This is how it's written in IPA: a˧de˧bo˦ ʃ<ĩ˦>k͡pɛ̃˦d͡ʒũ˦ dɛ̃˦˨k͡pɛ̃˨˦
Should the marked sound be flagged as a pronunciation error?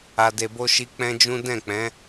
yes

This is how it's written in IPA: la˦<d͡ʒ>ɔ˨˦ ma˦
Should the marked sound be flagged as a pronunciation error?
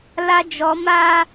no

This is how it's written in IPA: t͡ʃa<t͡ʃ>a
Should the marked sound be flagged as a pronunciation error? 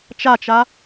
no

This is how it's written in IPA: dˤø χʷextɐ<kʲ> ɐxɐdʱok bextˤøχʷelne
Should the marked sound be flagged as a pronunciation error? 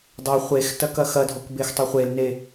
yes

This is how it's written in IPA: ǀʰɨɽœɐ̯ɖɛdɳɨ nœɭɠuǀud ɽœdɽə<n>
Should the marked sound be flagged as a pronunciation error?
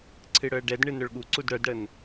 no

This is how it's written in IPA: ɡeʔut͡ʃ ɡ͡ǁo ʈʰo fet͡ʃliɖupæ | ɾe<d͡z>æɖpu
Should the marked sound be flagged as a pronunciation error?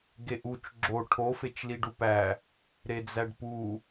no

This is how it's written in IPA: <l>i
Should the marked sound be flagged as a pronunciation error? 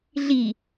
yes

